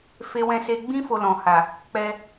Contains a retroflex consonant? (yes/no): no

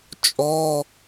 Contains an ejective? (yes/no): yes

